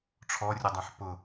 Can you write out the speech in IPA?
ʈ͡ʂʰ ɔ rʲ ʊ dˤ ã ħ p ʊ

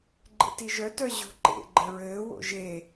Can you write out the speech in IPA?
ɡ͡ǃ ḛ t i ʒ œ t œ ʑ o̤ ǃ ḛ ɡ͡ǃ ɘ ɹ ɘː w o̰ ʒ e

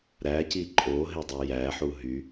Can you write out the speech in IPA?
ɾ æ c i ǃʼ o ɦ e dˤ ø j æ ħ u ɦ y

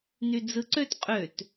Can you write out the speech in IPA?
n y d͡z ɯ ǀ ø t qʼ ø t

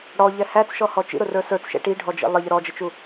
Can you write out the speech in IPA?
ɽ ɔ ʎ ɛ h æ t͡s ʃ ɔ h ɔ t͡ʃ ḭ ɾ ʊ r ə˞ s ə˞ t͡s ʃ ɛ̰ ʈ i ɖʱ ɔ d͡ʒ ḭ lˠ ə ʎ ə ɾ ɔ d͡ʒ ə t͡ʃ u

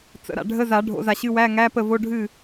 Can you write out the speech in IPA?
t͡s ə̰˨˩˦ ɾ a̰˨ ɖʱ ə˧˥˧ z a˨˩˦ ɖʱ o̰˨˩˦ z a˨ ɕ ɨ˧˥˧ w æ˧˥˧ ŋ æ˧˥˧ p ə˥˩ v o˧˥˧ ɖʱ ɨ˥˩

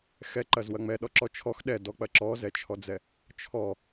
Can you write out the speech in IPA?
x ɛ ǃ ɐ z w ɐ ŋ͡m ɛ ɗ ɔ ǁ ɔ t͡ʃʰ ɔ x ɗ ɛ d ɔ k͡p ɐ ǁ ɔ z ɛ t͡ʃʰ ɔ d͡z ɛ | t͡ʃʰ ɔ

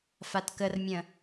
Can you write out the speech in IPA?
f a t k ə r mʲ ə̃

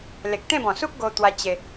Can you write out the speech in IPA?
l e˨ k̚ t̪ ẽ˥˧ b ɔ̃˨˩ s u˦ k̚ ɡ o˧ t̪ w a˧ t͡ɕ e˧

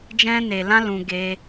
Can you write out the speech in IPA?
d͡ʒ ɛ̃˦ n e˧ l ã˦ l ũ˦ ɡ e˦

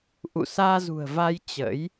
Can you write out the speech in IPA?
ʔ ṵ˧˨ s aː˧ z ṳ˨˩ ə̯ v a˧ j t͡ɕ ə̰˧˥ j

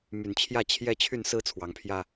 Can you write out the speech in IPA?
m y˨˩ n t͡ɕʰ j ä˥˨ t͡ɕʰ j ɛ˦ t͡ɕʰ y˥˨ n s ɹ̩˦ t͡sʰ w ɑ˨˦ ŋ pʰ j ä˦

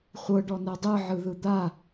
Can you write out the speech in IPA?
χʷ ɤ ɖ ɔ n ɛ dˤ ɯ ʕ ɯ ð ɯ d̪ a

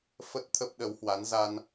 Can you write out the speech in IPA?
f ə˦˥ t̚ t̪ʰ ə˦˥ p̚ ɗ ə˨˦ w h w a˨˦ n z a˧ n

